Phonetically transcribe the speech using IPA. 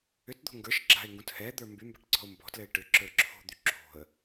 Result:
ʏtd̪o̤ ŋɡə˞ʃ ɡ͡ǁa̤ɪ̯ŋɡũt hɛd̪ə˞ mbymba̤ʈǀɔ̤ʊ̯ mbɔ̤tlɘɪ̯ ʈʏǁə˞ ǁʰo̤d̪y ǁʰo̤ə̯

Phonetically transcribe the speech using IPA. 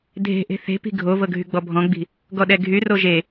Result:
dʱe̤ʔe̤ θe̤pi̤ ɡʱovɤ ɡʱyɡ͡bɔbʱɔ̃ɡ͡bi̤ | ɡɔɗɛɡʱyro ʒe

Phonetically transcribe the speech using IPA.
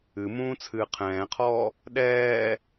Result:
ɨmũː t͡sʰɨːqʰɛ̃ːqʰɔː | ɗɛː

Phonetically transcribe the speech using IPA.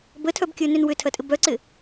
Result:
bətʰœbkʲəːnʏn wʏtʰɐtʼɪ bœǀɪ

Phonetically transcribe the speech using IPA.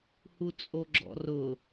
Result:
hut͡sʼoɡ͡ǁɔ̰rʊ

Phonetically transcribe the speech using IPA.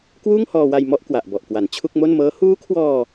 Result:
kwuː˥˩ŋhɔː˧wa˧j mɔ˥˩ʔ kwa˨˩ʔbɔ˨˩ʔkwa˩˦n t͡ɕʰu˥˩k̚mo˥˩n mɤː˦˥ huː˦˥kʰwɔː˧

